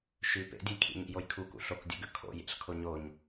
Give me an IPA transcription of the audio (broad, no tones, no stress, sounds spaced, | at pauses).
ʃ ʉ p ḛ dʲ ɨ j kʰ ḭ ɲ ḭ j o j kʰ u k ṵ ɬ o k dʲ u ɡ ʉ kʰ o̰ j ḛ ɬ kʰ o ɲ o ɲ